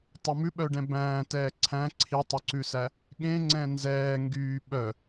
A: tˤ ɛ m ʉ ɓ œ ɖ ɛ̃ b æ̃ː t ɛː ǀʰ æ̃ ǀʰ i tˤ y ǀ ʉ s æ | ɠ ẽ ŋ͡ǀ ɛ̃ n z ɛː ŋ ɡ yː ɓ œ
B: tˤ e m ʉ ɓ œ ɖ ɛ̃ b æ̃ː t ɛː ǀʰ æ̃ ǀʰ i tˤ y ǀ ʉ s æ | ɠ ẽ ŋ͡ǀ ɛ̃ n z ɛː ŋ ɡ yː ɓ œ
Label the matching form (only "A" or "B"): A